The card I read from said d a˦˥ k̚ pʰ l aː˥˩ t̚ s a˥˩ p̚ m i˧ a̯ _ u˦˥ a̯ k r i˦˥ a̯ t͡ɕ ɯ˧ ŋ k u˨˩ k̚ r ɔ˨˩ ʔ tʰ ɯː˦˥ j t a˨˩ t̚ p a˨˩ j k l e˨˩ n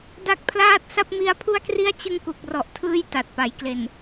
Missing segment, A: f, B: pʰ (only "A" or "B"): B